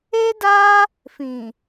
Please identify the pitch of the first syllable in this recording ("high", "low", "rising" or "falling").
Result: high